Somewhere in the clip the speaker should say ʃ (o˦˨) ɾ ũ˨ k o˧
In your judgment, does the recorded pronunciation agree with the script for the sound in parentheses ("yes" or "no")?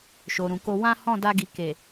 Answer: no